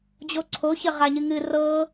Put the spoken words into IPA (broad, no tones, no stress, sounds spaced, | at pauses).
d͡ʑ o ǀʰ o ç ə ʁ a ɲ ɨ ŋ ɨ r ɤ